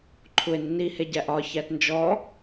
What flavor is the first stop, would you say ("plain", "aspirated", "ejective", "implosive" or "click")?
click